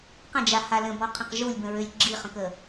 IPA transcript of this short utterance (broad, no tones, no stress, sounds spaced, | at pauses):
q ə̃ d͡ʒ a h a l ə̃ b ɔ qʰ ə̃ q ʒ u lʲ b ə̃ ɹ ø lʲ ɡ͡ǁ i χ ə̃ k ə